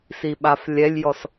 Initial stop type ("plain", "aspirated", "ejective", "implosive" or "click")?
implosive